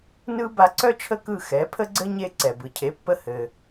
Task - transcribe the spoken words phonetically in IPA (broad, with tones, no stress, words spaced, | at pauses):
nɯ˥ ba˧ǀœ˥t͡ʃʰə˥˩ kɯ˥˩ xɛ˩˥ pʰə˥ɡ͡ǀɘ˥ ɲe˧ ǀɛ˩bɯ˩cʰe˩˥pːə˧ hɘ˩